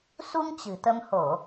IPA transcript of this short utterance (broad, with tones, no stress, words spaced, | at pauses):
su˧ŋ t͡ɕɨ̤˨˩t̪ə˧m ho˧˩˨